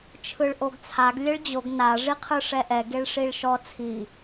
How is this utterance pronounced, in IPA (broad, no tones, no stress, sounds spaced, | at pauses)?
t͡ʃʰ ɯ ɭ ʔ o ɡ t͡sʰ a ɡ lʲ e ɭ d͡ʑ o ɡ n a ʐ i qʰ ɯ ʂ ɛ ʔ ɛ ɡ e ɭ ʂ i ɭ ʃ ɔ t͡sʰ i